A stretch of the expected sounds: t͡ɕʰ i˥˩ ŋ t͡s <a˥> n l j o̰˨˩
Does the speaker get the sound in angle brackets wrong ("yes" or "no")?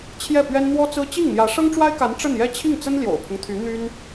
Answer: yes